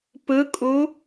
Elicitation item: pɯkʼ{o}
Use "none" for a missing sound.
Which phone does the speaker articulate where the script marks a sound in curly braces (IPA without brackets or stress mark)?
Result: u